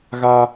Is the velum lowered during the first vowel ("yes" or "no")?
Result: no